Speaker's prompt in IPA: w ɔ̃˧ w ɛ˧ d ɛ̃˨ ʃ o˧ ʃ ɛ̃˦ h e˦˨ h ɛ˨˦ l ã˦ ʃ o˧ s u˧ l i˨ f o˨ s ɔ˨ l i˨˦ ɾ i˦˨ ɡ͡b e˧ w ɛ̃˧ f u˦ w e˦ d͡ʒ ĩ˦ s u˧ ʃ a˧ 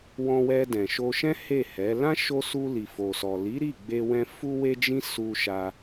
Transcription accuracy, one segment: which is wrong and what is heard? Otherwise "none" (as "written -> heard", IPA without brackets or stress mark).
none